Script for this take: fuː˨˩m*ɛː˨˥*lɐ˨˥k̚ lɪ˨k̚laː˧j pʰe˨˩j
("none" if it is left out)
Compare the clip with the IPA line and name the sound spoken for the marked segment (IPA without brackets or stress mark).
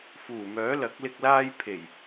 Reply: œː˨˥